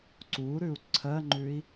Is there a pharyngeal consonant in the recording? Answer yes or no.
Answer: no